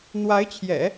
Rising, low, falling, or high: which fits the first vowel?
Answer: rising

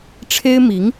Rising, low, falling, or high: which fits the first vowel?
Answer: high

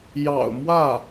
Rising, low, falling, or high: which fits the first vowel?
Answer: low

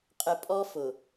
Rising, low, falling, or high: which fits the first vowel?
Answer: low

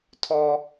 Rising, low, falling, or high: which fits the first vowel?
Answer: high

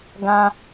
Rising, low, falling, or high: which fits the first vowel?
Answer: high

